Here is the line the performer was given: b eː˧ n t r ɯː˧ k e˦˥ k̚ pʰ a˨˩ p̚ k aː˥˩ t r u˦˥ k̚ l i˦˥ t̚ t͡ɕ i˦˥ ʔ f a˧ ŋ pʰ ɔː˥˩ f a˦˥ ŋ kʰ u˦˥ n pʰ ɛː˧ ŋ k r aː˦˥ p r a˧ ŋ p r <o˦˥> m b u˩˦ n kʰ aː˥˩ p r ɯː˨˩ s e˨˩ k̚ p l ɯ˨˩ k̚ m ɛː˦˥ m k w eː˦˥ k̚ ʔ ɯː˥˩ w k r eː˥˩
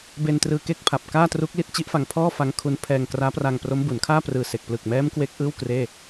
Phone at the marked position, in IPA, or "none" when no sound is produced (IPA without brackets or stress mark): o˦˥